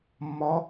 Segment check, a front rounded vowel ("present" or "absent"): absent